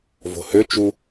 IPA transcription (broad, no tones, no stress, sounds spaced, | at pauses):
v o̤ h ø t͡ʃ u